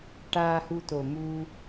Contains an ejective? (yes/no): no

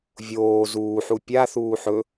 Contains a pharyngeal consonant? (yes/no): yes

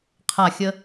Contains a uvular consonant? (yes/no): yes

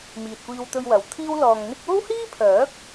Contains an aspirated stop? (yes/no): yes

